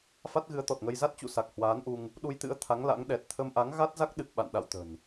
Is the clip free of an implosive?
no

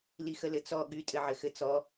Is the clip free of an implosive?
no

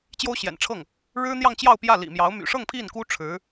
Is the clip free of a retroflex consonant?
no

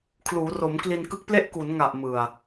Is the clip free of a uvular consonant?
yes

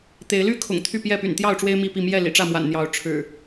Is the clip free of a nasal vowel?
yes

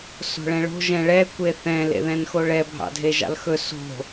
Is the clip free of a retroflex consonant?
no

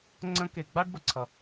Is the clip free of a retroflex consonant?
no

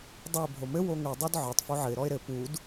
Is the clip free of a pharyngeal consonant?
no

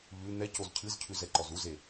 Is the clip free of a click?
no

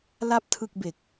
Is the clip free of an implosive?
yes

